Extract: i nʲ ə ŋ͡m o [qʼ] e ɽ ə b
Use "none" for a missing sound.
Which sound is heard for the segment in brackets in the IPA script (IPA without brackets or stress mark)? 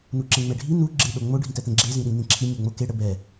k